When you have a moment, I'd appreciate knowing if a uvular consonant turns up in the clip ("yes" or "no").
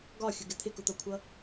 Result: no